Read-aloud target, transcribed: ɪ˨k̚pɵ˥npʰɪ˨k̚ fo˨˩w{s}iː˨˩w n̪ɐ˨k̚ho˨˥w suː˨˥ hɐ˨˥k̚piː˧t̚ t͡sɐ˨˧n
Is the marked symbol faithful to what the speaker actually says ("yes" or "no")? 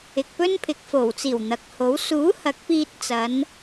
no